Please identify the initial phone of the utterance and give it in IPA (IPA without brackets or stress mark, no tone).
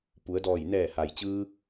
p